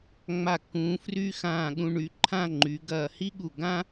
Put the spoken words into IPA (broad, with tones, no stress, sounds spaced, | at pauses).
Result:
ŋ͡m a˧˩ kː ũː˩˧ f r y˥ x ãː˧˩ ɠ ũ˧ ɳ y˩˧ ǃʰ ã˥˧ ŋ͡ǃ y˩˧ ɡ ɐː˧˩ h i˥ ɠ u˧˩ ɡ ã˥